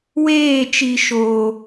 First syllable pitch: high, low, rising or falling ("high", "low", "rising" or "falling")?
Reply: falling